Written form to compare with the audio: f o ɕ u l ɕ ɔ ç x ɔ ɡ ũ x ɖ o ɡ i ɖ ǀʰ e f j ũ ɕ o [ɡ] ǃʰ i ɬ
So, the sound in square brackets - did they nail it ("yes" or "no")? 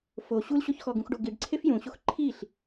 no